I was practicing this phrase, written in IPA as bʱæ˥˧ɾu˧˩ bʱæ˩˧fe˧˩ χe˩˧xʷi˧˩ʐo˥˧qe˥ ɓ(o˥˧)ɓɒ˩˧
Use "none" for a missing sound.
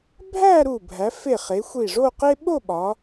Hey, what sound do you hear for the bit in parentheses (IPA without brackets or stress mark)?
o˥˧